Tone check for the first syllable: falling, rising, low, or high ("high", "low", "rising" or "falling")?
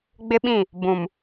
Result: high